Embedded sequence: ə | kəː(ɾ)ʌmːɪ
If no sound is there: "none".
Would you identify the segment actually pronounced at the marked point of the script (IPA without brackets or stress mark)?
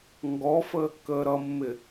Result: ɾ